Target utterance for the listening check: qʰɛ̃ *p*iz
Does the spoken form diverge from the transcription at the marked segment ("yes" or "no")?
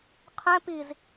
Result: no